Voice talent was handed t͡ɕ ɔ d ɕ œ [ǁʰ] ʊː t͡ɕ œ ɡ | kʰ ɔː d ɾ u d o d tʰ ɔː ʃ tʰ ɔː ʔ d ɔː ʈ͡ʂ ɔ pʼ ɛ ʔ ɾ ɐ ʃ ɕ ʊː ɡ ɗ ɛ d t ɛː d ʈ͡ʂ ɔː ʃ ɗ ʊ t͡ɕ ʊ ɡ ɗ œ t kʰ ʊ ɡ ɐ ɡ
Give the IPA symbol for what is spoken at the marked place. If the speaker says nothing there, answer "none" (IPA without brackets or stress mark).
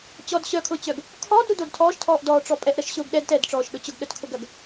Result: kʰ